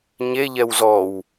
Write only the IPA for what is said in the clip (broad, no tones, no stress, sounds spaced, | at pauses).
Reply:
ɲ e ʎ ɛ w z ɔ w